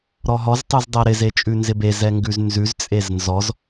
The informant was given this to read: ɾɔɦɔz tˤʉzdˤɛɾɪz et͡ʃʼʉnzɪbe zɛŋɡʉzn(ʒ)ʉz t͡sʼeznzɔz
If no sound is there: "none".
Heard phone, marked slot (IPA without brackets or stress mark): z